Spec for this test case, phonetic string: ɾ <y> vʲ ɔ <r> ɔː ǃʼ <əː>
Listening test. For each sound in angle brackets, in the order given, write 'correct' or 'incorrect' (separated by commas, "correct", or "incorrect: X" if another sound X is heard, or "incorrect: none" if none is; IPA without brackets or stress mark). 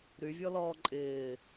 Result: correct, incorrect: l, incorrect: ɪː